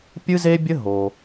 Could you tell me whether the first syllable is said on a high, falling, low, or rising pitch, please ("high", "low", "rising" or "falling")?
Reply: high